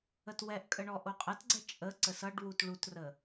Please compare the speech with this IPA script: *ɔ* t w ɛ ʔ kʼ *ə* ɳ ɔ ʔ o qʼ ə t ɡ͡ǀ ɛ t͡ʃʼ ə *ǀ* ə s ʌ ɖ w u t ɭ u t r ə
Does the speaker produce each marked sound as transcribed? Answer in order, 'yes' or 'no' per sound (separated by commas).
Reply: no, yes, yes